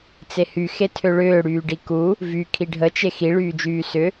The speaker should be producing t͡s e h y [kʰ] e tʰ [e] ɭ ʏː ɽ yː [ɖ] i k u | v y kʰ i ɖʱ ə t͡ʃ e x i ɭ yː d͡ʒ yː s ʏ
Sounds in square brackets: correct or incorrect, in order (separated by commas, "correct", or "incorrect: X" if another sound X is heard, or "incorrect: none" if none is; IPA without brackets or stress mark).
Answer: incorrect: x, incorrect: ø, correct